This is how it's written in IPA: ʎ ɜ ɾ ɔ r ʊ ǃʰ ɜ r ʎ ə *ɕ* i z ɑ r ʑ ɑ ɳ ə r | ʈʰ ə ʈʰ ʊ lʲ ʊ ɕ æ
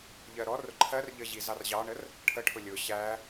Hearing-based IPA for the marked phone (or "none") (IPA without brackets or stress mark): ʑ